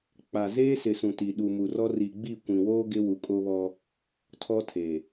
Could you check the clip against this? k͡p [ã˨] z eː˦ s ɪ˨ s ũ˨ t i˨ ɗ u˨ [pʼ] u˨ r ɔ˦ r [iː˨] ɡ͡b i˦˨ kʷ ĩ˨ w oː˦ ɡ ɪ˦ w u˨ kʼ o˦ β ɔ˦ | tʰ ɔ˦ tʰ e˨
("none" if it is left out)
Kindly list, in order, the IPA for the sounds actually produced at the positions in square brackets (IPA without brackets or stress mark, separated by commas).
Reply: a˨, m, i˨